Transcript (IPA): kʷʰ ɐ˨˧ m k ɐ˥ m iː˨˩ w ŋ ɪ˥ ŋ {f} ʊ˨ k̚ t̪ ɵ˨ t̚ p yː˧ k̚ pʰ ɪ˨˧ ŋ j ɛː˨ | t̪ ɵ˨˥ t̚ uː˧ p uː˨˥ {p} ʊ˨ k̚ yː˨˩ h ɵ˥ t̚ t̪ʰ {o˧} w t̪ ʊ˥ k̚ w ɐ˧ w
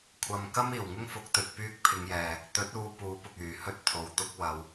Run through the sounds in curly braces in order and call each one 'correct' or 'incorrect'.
correct, correct, incorrect: o˨

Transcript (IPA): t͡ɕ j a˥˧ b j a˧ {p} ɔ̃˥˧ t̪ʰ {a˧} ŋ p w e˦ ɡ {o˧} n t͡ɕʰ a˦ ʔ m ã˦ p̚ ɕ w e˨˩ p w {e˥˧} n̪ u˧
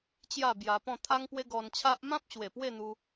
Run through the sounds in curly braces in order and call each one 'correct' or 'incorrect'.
correct, incorrect: a˦, incorrect: ɔ˧, correct

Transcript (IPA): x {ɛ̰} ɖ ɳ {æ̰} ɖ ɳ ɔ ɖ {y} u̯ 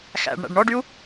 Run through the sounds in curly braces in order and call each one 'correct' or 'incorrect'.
incorrect: æ̰, correct, correct

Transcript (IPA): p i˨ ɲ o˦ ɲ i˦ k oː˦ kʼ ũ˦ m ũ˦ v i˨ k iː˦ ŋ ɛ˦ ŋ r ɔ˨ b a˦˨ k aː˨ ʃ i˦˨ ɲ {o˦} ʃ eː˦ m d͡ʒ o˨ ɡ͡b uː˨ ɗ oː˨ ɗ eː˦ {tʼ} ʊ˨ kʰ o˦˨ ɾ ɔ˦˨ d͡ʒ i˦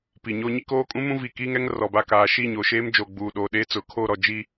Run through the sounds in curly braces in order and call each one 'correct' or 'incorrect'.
incorrect: o˨, incorrect: t͡s

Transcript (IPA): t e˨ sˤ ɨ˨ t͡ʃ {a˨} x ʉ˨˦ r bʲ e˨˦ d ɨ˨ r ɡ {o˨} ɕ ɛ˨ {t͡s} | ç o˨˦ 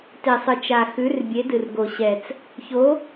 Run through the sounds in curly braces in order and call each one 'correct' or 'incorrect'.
correct, correct, correct

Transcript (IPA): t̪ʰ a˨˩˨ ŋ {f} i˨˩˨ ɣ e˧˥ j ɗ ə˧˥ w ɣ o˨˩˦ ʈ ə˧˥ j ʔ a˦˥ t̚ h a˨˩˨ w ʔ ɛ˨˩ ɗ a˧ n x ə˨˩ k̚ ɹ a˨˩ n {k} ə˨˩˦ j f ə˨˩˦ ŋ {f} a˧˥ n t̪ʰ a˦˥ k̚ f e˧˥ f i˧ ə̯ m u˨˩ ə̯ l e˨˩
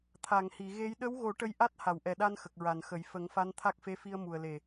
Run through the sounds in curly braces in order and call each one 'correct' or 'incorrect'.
incorrect: h, incorrect: x, correct

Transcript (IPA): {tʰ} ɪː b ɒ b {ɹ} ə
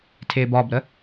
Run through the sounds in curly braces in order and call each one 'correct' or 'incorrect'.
correct, incorrect: ɾ

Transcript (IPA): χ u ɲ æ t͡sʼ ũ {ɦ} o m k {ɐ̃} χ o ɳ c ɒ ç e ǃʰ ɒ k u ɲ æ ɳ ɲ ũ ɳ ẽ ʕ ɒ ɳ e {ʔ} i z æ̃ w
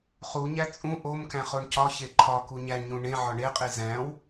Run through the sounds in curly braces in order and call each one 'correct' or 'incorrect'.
incorrect: ʔ, incorrect: æ̃, incorrect: qʼ

